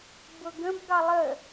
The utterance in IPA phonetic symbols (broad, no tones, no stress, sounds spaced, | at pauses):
b ʊ ɡ ə̃ b ɡ ɑ lˠ ə